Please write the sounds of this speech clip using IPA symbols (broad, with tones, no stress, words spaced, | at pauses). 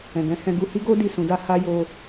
ɛ̃˨ɡɛ̃˨˦hɛ̃˧ ɡu˧hi˦ ɡo˦ di˦˨sũ˨˦da˦ ha˦jo˧